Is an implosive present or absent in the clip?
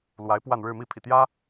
absent